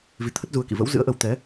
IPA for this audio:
vi˨˦t̪ʰə˦˥t̚ zu˧ə̯kḭ˧˨ və̰˧˥wzɨ̰˧˥ə̯ʔə˧w t̪ɛ˨˦

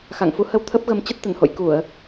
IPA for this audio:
xa̰˧˨ŋ fu˨˦hə˧w t̪ʰə˦˥p̚ɣə˨˦m t͡ɕə˦˥t̚t̪ə˧˩nho̰˧˨j ku˧˩˨ə̯

